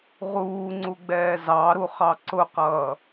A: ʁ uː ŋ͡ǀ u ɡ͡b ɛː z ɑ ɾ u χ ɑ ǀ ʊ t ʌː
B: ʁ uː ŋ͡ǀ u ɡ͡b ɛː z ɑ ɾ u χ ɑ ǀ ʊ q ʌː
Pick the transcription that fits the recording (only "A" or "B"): B